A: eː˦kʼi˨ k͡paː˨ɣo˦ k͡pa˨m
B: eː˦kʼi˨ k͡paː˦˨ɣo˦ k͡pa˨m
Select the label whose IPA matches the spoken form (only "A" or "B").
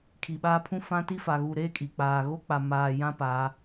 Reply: A